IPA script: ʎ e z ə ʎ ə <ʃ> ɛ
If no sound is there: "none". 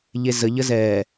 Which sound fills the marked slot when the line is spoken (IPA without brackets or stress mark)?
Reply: z